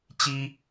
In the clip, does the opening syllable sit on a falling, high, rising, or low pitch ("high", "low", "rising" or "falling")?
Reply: high